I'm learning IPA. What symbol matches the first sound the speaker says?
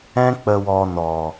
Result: ɛ̃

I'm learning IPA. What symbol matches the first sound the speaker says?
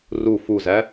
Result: r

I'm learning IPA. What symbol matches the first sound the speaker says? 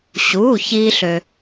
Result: ɕ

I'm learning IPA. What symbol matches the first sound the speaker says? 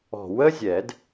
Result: ɔ̤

